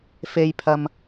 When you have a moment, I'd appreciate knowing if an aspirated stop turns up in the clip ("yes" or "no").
yes